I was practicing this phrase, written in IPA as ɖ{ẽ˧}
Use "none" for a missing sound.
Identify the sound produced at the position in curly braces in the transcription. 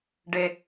e˧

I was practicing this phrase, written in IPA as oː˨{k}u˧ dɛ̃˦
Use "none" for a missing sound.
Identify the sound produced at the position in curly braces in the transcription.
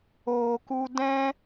k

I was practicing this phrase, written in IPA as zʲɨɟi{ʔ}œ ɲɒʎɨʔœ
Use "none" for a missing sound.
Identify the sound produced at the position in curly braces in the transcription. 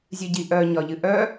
ʔ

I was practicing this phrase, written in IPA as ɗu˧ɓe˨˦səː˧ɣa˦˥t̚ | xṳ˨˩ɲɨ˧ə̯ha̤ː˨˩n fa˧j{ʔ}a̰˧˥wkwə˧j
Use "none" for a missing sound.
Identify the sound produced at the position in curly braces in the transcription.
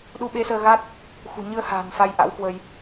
ʔ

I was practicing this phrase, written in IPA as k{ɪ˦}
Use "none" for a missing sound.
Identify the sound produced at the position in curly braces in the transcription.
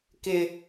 ɪ˦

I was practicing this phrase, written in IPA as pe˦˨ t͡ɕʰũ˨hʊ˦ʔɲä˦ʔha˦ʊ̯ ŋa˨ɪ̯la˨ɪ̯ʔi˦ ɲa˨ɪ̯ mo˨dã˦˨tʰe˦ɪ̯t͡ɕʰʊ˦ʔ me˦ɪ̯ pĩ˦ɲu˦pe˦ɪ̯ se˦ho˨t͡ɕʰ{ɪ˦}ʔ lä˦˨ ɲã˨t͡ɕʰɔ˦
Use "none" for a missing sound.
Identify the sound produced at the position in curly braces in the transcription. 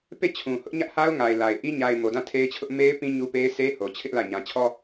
ɪ˦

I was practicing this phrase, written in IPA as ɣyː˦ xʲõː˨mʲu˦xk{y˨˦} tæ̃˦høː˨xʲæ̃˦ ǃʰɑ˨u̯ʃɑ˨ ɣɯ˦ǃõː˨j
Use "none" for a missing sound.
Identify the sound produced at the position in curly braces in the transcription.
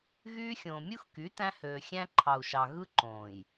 y˨˦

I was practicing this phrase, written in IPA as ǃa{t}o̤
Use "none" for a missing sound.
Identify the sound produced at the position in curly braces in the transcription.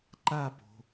p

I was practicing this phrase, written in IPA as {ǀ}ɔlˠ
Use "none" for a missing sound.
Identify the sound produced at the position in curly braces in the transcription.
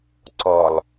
ǀ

